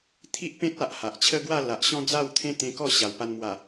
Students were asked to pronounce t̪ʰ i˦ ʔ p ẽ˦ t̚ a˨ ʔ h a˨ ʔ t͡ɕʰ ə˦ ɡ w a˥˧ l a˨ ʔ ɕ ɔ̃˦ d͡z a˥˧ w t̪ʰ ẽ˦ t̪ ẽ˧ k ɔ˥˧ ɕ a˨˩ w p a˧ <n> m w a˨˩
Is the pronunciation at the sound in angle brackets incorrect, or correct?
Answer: correct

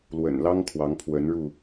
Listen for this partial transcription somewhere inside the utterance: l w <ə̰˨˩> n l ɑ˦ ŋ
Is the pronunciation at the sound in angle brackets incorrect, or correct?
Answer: correct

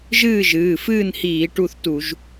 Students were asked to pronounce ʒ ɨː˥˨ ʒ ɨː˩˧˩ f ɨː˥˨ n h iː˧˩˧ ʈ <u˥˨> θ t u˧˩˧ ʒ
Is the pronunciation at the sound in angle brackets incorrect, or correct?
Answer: correct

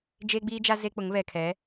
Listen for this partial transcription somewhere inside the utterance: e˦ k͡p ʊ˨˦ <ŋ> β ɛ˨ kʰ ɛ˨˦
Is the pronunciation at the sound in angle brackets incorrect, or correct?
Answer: correct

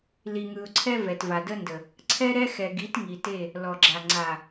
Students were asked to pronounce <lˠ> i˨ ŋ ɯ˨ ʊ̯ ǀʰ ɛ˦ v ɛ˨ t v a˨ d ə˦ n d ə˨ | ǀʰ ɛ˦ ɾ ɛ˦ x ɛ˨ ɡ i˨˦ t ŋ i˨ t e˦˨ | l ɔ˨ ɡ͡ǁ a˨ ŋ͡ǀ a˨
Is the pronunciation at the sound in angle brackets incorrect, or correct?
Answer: incorrect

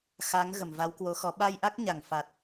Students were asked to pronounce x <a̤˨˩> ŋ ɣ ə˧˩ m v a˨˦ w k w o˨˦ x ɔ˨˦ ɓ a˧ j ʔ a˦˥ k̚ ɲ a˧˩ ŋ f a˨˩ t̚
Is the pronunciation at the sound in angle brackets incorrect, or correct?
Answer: incorrect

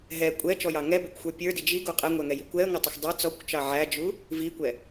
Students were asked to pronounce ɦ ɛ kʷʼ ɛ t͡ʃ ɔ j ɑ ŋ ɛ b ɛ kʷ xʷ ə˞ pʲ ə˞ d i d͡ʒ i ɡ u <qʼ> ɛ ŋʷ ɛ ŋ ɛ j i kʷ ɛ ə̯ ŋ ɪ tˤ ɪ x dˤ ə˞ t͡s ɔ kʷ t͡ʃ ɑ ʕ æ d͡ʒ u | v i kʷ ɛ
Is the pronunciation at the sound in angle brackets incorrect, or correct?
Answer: correct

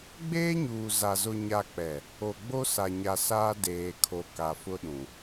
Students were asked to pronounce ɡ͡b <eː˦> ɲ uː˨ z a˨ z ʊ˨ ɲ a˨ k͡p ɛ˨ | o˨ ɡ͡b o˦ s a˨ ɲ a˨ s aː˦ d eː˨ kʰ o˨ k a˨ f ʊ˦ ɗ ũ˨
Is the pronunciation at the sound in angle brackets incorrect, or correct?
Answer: correct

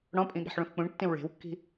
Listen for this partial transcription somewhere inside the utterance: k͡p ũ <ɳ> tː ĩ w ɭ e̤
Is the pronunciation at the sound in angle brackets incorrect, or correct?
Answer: correct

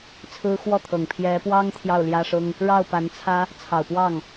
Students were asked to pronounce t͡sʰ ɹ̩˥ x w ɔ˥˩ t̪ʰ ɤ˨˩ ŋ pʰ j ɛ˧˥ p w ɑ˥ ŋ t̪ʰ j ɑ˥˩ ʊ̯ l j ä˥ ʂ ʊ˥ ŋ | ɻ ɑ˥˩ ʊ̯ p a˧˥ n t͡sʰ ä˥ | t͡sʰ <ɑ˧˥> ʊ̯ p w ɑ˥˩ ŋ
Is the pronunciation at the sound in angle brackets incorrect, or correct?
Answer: incorrect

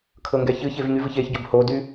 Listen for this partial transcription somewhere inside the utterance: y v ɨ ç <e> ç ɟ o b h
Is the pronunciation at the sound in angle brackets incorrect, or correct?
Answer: correct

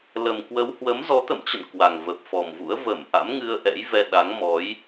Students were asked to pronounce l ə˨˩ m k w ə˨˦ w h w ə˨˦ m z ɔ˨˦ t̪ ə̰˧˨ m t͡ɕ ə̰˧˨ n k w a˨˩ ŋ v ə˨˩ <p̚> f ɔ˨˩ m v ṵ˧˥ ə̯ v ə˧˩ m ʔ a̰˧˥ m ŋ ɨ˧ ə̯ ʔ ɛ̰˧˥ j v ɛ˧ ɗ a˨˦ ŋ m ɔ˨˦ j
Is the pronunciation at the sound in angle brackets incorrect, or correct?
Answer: correct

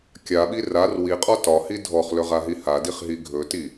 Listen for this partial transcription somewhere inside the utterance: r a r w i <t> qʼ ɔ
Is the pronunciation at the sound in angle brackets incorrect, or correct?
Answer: incorrect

